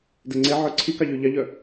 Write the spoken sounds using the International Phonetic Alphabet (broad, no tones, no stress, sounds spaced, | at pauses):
d ɛ ŋ͡ǀ e ʕ œ ǀʰ i k ɑ ʎ y ʎ ɑ ʎ œ